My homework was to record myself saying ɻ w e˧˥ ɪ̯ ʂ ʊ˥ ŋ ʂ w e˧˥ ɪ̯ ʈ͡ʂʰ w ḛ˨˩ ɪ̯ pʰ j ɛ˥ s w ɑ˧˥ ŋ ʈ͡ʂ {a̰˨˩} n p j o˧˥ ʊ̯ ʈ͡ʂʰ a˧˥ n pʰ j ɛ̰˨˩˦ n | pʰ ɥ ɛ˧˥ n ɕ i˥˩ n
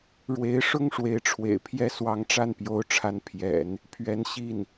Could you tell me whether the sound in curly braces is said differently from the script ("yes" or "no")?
yes